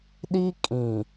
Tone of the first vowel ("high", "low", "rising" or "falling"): high